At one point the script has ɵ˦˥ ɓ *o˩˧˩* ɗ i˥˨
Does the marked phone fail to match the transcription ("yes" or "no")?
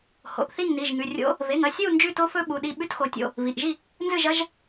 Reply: yes